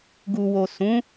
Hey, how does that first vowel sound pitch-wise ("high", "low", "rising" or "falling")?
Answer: low